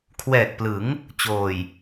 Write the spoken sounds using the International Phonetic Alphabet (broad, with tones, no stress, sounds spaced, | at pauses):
kʰ w ɛː˨˩ k̚ p l ɯ˩˦ ŋ | t͡ɕ oː˨˩ j